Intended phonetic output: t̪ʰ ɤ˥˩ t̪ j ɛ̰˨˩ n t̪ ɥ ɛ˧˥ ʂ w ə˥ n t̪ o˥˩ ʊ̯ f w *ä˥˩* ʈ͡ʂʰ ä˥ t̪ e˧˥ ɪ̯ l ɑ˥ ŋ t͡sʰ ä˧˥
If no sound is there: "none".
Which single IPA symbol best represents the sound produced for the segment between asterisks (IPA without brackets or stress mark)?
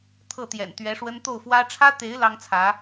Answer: ä˥